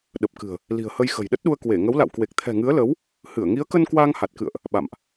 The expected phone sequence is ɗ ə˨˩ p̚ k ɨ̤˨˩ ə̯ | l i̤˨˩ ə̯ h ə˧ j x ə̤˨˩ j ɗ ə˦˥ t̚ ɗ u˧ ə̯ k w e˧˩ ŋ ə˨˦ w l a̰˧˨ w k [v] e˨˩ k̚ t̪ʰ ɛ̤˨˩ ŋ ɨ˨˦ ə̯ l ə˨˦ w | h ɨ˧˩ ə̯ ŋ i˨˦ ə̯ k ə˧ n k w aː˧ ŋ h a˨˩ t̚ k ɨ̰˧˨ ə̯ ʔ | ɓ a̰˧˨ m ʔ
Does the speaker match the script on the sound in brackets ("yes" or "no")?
no